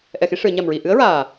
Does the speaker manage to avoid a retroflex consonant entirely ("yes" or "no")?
no